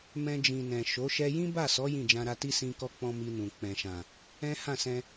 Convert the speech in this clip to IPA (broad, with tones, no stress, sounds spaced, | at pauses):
m ɛ̃˧ d͡ʒ ĩ˨ n ɛ̃˨ ʃ o˨˦ ʃ ɛ˧ j ĩ˦ b a˦˨ s ɔ˨˦ j ĩ˦˨ d͡ʒ ã˧ ɾ a˧ t i˦ s ĩ˧ k ɔ˧ k͡p ɔ̃˧ m i˧ n ũ˨ k͡p ɛ̃˨ ʃ ã˨ | ɛ̃˦ h ã˦˨ s ɛ̃˧